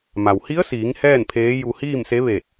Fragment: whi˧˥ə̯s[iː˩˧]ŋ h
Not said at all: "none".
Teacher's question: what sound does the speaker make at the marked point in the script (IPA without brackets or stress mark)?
iː˩˧